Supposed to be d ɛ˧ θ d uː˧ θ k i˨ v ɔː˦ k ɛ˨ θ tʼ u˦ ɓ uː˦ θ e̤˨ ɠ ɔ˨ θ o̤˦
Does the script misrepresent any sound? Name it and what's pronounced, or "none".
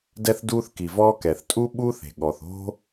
none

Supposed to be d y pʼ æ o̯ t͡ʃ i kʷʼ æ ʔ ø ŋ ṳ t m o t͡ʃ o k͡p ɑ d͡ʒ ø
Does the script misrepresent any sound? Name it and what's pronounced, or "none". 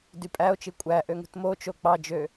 none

